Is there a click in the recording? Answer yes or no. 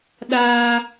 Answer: no